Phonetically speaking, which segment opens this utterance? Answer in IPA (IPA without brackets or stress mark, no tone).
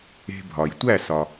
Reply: e̤